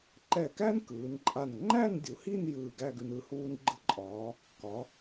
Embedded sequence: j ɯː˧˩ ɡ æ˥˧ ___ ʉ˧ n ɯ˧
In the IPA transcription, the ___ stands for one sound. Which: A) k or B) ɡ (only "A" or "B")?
B